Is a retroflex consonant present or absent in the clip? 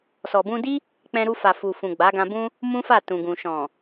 absent